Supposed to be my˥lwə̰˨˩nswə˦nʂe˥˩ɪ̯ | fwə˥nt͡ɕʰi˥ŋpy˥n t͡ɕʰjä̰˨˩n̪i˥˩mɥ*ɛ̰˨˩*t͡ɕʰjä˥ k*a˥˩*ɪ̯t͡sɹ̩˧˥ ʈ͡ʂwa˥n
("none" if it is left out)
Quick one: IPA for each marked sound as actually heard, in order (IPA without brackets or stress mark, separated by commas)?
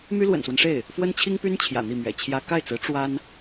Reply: ɛ̰˨˩, a˥˩